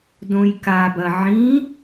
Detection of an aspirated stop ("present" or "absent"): absent